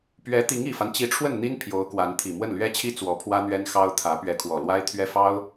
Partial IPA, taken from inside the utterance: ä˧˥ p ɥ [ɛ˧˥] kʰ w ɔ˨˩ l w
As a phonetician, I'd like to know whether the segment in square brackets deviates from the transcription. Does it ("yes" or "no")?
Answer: no